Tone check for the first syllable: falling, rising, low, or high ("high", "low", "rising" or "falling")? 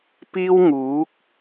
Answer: high